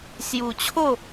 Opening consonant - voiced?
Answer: no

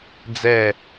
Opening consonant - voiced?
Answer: yes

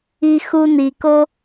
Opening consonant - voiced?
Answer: no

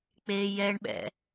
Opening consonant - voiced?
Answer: no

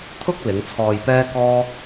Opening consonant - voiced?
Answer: no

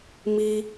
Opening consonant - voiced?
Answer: yes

